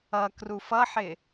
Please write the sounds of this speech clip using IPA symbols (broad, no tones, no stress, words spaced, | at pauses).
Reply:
ʌkruf ʌħɪ